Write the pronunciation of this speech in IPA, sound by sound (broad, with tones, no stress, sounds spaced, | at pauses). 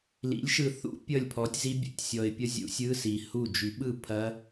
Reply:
l ḭ˩˥ lʲ ʃ ɯ˨ θ ṵ˦˥ pʲ ʌ˥˩ lʲ pʰ ɔ˩˥ tʲ z i˦˥ bʲ ṵ˨ tʲ sʲ ɔ˨ ɪ̯ pʲ ʌ˦˥ zʲ ṵ˨˩˦ sʲ ɯ˧˥˧ s i˨ h u˥˩ d͡ʒ y˨˩˦ ɓ ɯ˥˩ pʰ ɐ˦˥